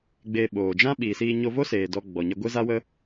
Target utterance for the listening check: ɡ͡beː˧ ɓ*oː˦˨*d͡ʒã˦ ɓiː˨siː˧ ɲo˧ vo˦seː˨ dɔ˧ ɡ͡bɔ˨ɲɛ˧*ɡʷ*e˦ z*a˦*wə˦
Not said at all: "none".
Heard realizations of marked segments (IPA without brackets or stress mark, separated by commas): oː˨, ɡʷ, a˦